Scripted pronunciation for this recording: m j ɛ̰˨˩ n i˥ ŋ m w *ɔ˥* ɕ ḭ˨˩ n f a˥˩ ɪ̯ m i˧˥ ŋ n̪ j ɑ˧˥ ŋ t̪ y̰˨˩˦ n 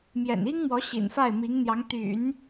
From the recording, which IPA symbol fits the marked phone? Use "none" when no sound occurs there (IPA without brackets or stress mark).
ɔ˧˥